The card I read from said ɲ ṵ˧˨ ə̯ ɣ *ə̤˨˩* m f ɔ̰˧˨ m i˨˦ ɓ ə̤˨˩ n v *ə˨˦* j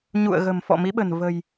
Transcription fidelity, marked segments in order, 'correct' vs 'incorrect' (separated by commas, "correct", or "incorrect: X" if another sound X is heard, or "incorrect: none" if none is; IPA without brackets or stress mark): correct, incorrect: ə̤˨˩